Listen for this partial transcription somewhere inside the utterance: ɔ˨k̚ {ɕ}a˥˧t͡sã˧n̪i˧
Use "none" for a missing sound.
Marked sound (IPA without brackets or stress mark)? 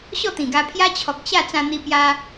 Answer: ɕ